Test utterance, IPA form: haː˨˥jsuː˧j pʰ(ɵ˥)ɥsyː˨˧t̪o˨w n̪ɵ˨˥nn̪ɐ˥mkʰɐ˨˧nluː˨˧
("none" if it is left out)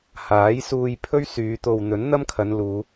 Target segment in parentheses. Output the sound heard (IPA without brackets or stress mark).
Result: ɵ˥